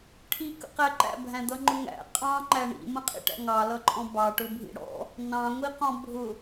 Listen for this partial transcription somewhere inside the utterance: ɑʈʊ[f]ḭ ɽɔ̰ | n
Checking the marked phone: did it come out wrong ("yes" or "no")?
yes